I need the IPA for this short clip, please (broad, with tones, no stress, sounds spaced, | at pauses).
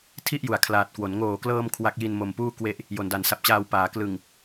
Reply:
tʰ i˥˩ ʔ j u˨˩ a̯ kʰ l aː˨˩ t̚ k w o˩˦ n ŋ oː˨˩ k l ɤː˧ m kʰ w a˦˥ k̚ j i˧ n m o˨˩ m p uː˥˩ k w e˦˥ ʔ | j o˨˩ n d a˨˩ n s a˨˩ p̚ t͡ɕ aː˧ w p aː˩˦ k l ɯ˨˩ ŋ